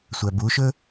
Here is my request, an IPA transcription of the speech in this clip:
sʷ æ b u ʃ ɵ

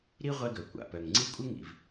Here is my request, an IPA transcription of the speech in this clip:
ɾ i˥ ʁʷ ɛ˥ ɡ œ˩ kʷ a̰˩ p œ˩ ŋ ŋ͡ǀ i˥ kʷʼ ɘ˥ ŋ ḭ˩ v

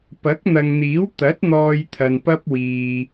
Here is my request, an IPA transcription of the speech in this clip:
p ɐ˨˥ k̚ n̪ ɐ˨ ŋ n̪ iː˨˥ w t̪ ɐ˨˥ t̚ n̪ ɔː˧ j t̪ʰ ɐ˨ n p ɐ˥ p̚ w iː˧

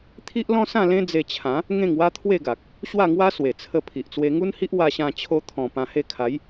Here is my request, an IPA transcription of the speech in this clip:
t̪ʰ i˦ ʔ l ɔ̃˦ s ã˥˧ l ẽ˦ d͡z e˧ t͡ɕʰ ã˨˦ | ŋ ẽ˥˧ ŋ w a˦ t̪ʰ w e˥˧ ɡ a˨ k̚ | ɕ w a˥˧ ŋ w a˦ s w e˨˩ t͡sʰ ə˧ pʰ i˨ ʔ t͡s w e˧ ŋ u˦ n h i˦ ʔ w a˧ ɕ ã˧ t͡ɕʰ o˧ t̪ʰ ɔ̃˨˩ p ã˧ h e˥˧ kʰ a˨˦ j

